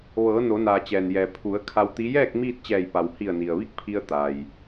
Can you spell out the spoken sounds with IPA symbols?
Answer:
ʋ ɤː˩˧ n o˩˧ n aː˩ t͡ɕ ɛː˩ n j ɛː˩ pʰ u˩˧ ə̯ kʰ a˧ w t̪ i˧˥ j ɛː˥˨ k̚ m iː˥˨ t̚ t͡ɕ ɛː˧˩ j p a˩ w h i˧˩ ə̯ n i˩ ə̯ ʋ i˥˨ k̚ pʰ i˧ ə̯ t̪ a˩ j

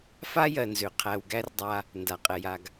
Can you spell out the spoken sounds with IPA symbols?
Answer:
f a˥ j ɜ˩ n z ø˩ qʰ æ˩ w ɡ æ˥ r dˤ a˧ | n d a˩ qʼ ɛ˩ j a˩ ɡ

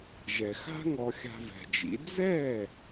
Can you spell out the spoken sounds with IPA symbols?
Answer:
ʒ ɛ˩ x a̤˥ ŋ ɔ˧ xʲ a̤˧ v ɛ̤˩ d͡ʒ ḭ˩˥ d͡z ɛ˥˩

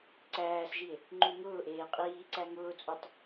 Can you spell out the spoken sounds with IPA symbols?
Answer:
ǀ æː s ʒ i e̯ | ŋ͡ǃ u ŋ ʊː ʔ eː qʼ iː ǀ æ ŋ ʊː t͡sʼ u tˤ

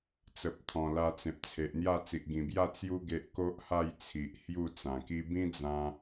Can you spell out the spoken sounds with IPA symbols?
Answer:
t͡s ə˨ p̚ t̪ʰ ɔ̃˨˩ l a˧ t͡s ẽ˨ p̚ t͡sʰ e˨ ʔ n̪ j a˥˧ t͡s i˨ ʔ ɡ ĩ˨˩ b j a˥˧ t͡s j u˦ ɡ e˦ ʔ k o˦ ʔ h a˥˧ j t͡sʰ i˨ ʔ h j u˥˧ t͡s ã˨˩ k i˦ b ĩ˦ d͡z ã˧

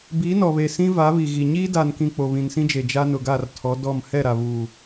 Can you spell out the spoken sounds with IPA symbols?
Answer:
b iː˨˦ n ɔ˨ β e˨ s ĩ˦ v a˨˦ β i˨ ɣ i˨ ɲ iː˦ d a˨ n k ĩ˨ k͡p o˨ β ĩ˨ n s ĩ˦ d͡ʒ e˨ d͡ʒ a˦ n ʊ˨ ɡ a˦˨ r tʰ ɔ˨˦ d ɔ˦˨ m h ɛ˦˨ ɾ a˨ β uː˨

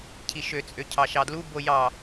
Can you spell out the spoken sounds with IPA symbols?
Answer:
cʰ i ʃ ø t͡sʼ ø cʰ ɑ ʃ ɑ d l u b o j ɑ

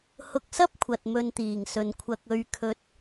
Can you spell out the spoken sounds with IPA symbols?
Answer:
h ʊ˨ k̚ s ɐ˥ p̚ kʷʰ ɐ˨ t̚ m ɵ˧ n t̪ iː˨˩ ŋ s ɵ˨ n kʷʰ ɐ˨ k̚ ɵ˨ ɥ kʰ ɵ˨˥ t̚

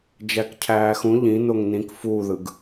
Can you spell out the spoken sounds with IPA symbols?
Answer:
d͡ʒ æ k cʰ æː x ũ ʎ ĩ n o ŋ n ĩ k f uː ð ɯ ɡ

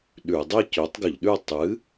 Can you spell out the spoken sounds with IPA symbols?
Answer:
ɗ ʉ˧˩˧ dˤ i˥˨ c ɵ˨˥ tˤ ɡ ɵ˧˩˧ ʎ ɗ ʉ˥˨ tˤ ɨ˨˥

